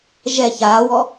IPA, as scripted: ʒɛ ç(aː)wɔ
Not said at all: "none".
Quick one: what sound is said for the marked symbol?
aː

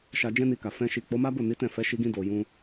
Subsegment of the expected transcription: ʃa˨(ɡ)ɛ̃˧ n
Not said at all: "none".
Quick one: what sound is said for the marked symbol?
d͡ʒ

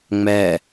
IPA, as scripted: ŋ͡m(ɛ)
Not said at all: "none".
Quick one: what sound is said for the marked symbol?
ɛ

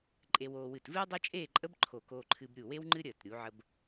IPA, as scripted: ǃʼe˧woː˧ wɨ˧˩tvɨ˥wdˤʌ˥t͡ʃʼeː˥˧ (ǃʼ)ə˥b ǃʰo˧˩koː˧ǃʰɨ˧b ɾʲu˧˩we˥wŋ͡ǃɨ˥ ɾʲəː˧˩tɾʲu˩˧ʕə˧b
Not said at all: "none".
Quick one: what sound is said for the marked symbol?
ǃʼ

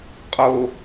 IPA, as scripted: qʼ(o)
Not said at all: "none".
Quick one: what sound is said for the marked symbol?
o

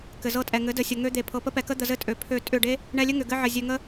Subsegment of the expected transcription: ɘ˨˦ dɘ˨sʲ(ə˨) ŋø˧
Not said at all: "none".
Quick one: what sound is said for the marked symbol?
ə˨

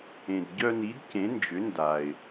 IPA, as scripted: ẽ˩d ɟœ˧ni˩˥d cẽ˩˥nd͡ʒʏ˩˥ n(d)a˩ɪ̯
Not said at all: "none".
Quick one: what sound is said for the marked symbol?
d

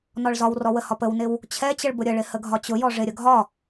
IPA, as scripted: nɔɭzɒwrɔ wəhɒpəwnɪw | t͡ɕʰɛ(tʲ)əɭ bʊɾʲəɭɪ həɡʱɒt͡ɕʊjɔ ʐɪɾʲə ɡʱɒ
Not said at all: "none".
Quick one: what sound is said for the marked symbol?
t͡ɕ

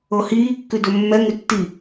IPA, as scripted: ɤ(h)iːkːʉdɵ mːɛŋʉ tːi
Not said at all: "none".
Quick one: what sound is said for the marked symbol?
h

